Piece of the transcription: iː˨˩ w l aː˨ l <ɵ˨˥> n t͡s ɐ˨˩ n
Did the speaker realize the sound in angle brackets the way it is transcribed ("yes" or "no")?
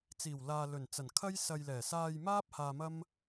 no